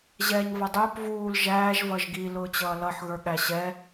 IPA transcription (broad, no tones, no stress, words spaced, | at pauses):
ʑɛːɲvʌdˤʊːp vuːl ʒæːʒ vʌʒɡi lʊːt͡ɕʌːlʌħ ɣə˞ɠæɕɛ